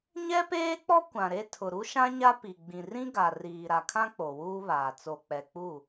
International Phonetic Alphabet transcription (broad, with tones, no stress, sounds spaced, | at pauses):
ɲ ɛ˦ p eː˦ k͡p ɔ˦ kʷ ã˨ ɾ e˦ tʰ ʊ˨ ɾ u˦ ʃ ã˦ ɲ a˦ p i˨ ɡ͡b ĩ˨ r ĩ˦ ɡ a˨ r iː˨ ɾ a˨ kʰ ã˦ k͡p o˨ w uː˦ β aː˨ t͡s o˨ k͡p ɛ˨ k͡p u˦˨